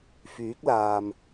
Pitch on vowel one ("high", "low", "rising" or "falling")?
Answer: rising